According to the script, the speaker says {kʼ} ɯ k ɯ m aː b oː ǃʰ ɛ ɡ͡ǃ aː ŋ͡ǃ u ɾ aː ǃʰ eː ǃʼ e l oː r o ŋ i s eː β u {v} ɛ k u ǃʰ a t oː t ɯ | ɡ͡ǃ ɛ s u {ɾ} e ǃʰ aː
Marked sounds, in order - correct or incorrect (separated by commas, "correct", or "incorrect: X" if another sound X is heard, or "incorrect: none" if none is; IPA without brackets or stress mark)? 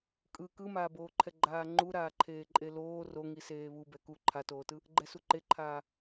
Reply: correct, incorrect: b, incorrect: ǃ